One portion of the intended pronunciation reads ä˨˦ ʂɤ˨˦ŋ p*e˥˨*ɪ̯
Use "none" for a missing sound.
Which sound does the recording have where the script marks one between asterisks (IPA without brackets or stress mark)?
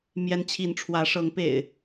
ḛ˨˩